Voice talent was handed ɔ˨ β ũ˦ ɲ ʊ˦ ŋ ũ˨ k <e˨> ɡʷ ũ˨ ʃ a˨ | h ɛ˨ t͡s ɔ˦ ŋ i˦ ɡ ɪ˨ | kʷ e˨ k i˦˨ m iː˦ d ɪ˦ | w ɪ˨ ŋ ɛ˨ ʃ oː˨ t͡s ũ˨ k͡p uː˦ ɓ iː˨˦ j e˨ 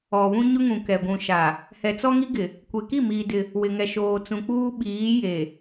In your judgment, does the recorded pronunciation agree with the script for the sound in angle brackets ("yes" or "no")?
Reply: no